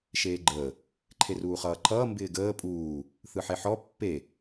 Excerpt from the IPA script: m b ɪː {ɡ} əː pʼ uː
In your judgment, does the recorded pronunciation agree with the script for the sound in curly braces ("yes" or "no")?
yes